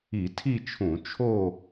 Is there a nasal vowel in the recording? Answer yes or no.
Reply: yes